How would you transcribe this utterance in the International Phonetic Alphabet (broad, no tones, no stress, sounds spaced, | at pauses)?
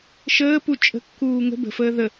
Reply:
ʃ əː p u t͡ʃʼ ə̤ kː uː ŋ ə̤ b ə̤ f əː ð ə